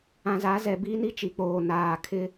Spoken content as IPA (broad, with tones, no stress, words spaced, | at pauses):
ã˨za˨˦zɛ˨ biː˦ni˦ t͡ʃi˨k͡poː˨ naː˨ kʰɪ˦